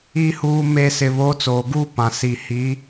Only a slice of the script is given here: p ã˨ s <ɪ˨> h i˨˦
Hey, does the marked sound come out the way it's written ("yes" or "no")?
no